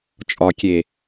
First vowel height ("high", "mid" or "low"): low